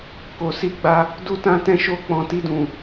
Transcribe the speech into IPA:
k o˨ s i˧ ɡ͡b a˧ | d u˧ t ã˧ t ɛ̃˧ ʃ o˧ k͡p ɔ̃˨ t i˧ d ũ˨

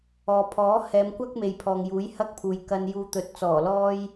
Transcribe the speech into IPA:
ɔː˨ pʰ ɔː˨˥ h ɛː˨˧ m kʷ ɐ˥ k̚ m e˨ j pʰ ɔː˨ ŋ j uː˨˥ j h ɐ˥ k̚ pʰ uː˨ j k ɐ˧ n j uː˧ t̪ ɵ˨˥ t̚ t͡s ɔː˨˩ l ɔː˥ j

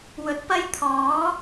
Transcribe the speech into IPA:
w ɵ˨˥ t̚ p ɐ˥ j t̪ʰ ɔː˨˥

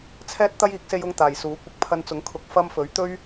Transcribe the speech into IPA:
t͡sʰ ɛː˥ t̚ t̪ ɐ˥ j iː˨˥ k̚ s e˧ j ʊ˧ ŋ t̪ aː˨ j s uː˨˥ kʷ ɪ˧ k̚ pʰ ɐ˧ n t͡s ʊ˨˥ ŋ kʰ ʊ˨˥ k̚ f ɐ˧ m f ɵ˨˥ ɥ t̪ ɵ˥ ɥ

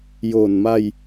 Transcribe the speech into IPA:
j o˨˩ n m a˧ j

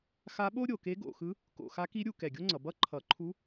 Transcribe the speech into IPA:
x a˧˥ ɓ o˥ ɾʲ o˧˩˧ k e˧˥ ɡ o̰˧˩˧ x ɯ˧˥ | k o̰˧˩˧ x a˧˥ k i˧˥ ɾʲ u˧˩˧ k ɛ˧˩˧ ɡʲ o˥ ŋ͡ǀ ʌ˩˧ b ʌ˥ ǃʰ ʌ˧˩˧ ǃʰ u˧˥

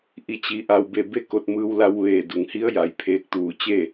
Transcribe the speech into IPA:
ʔ i˧˩ t͡ɕ i˩˧ ʔ a˩ w b e˧˩ b e˥˨ k o˧˩ t̚ m ɯː˧ w l a˧ w ʋ eː˧˩ d u˩ ŋ h i˧˥ ə̯ j a˩ j pʰ eː˧ k̚ t̪ uː˧˩ t͡ɕ e˥˨

